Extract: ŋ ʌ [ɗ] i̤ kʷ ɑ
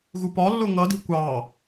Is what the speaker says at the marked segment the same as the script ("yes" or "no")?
no